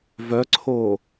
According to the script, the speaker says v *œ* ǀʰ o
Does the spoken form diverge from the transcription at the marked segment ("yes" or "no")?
no